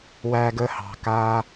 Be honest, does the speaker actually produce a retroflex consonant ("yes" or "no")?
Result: no